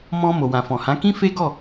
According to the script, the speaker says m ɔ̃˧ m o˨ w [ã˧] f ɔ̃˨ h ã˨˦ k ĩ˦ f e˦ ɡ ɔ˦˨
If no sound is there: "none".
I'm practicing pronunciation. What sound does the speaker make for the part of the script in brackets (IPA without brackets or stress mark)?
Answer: ã˨